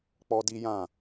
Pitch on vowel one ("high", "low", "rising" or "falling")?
high